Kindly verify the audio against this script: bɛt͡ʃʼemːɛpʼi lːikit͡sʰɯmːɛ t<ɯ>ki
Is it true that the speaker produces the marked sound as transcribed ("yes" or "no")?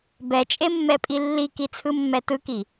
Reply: yes